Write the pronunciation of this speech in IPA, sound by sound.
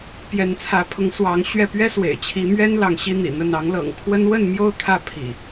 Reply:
p j ɛ˨˦ n t͡sʰ ä˨˦ pʰ ʊ˨˦ ŋ s w ɑ˨˦ ŋ ɕ ɥ ɛ˥˨ p ɥ ɛ˦ s w ḛ˨˩ ɪ̯ t͡ɕʰ i˨˦ m ɥ ɛ˦ n l ɑ˨˦ ŋ ɕ i˦ n̪ ḭ˨˩ n̪ ə˥˨ n ɑ˨˦ ŋ l ɤ̰˨˩ ŋ kʰ w ə˦ n w ə˥˨ n m j o˥˨ ʊ̯ t̪ʰ ä˥˨ pʰ ḭ˨˩

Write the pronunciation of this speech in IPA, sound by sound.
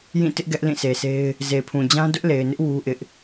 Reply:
j ĩ˦˨ t ɪ˦ ʔ ɡ ɛ˦ ʔ l ĩ˦˨ s e˨ s e˦ ɪ̯ | z e˨ pʰ ũ˨ d͡ʑ ã˦ d ʊ˦ ʔ l e˨ ɪ̯ n ɪ˦ ʔ w u˦ ʔ ɪ˦ ʔ

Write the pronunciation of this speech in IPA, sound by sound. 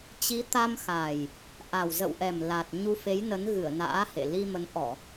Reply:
t͡ɕ i˨˦ t̪ a˧ m x a˨˩ j | ʔ a˨˩ w z ə̰˧˨ w ʔ ɛ˨˩ m l a˨˩ t̚ ɲ u˧ f e˨˦ j n ə˨˦ n ɣ ɨ˧˩ ə̯ n a̰ː˧˥ h ḛ˧˨ l i˧ m ə˨˦ n ʔ ɔ˧˩˨

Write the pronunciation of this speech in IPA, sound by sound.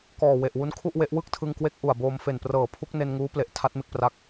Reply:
k ɔː˨˩ w e˨˩ ʔ w u˦˥ n kʰ u˥˩ ʔ w e˦˥ ʔ w ɯ˥˩ k̚ tʰ ɯ˧ ŋ k w e˦˥ k̚ ʔ u˨˩ a̯ b oː˧ m f e˨˩ n p r ɤː˨˩ pʰ u˦˥ k̚ n e˧ n ŋ uː˦˥ p l e˨˩ ʔ tʰ a˦˥ t̚ m e˥˩ k̚ p r a˦˥ k̚

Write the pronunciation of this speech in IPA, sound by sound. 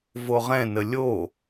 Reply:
v o ʁ ɛ̃ n ə lʲ o

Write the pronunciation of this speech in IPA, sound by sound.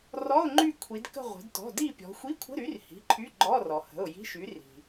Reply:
r ɔ˧˥˧ ʊ̯ ŋ͡ǃ y˦˨ kʷʰ i˩˧ d k ə̤˦˨ ʁʷ ə̤˩˧ d t ɔ̤˩˧˩ d i˦˨ pʲ ɔ̤˩˧ xʷ i˧˥˧ kʷʰ ə̤˧˥˧ ɾ y˨˥ r h i̤˩˧˩ ǃʰ y˧˥˧ ɡ͡ǃ ɔ˧˥˧ r ɔ˩ h ə̤˩˧˩ ʊ̯ j i̤˧˥˧ ʃ y˨˥ r i̤˩

